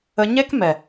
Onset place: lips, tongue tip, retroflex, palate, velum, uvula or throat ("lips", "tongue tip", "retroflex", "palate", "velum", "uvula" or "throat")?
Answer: palate